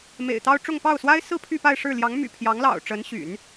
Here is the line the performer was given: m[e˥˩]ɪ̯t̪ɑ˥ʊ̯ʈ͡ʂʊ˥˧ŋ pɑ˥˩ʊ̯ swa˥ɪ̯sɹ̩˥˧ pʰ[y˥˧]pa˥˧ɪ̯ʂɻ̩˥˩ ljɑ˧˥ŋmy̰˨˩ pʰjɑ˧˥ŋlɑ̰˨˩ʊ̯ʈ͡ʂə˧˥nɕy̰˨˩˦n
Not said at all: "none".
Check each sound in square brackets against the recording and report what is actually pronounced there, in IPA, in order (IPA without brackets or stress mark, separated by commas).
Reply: ḛ˨˩, y˥˧